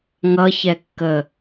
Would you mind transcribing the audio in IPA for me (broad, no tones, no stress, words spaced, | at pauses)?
ŋʌçɛkːə